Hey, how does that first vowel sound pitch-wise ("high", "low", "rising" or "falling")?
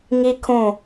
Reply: high